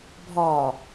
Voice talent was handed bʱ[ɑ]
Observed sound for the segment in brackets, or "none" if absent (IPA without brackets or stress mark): ɒ